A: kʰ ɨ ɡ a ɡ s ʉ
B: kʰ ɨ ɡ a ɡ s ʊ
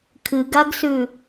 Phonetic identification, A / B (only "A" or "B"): A